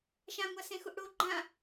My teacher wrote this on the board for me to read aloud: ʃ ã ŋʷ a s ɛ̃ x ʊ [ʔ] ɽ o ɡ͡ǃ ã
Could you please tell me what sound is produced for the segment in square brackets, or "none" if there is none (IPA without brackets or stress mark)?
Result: ʔ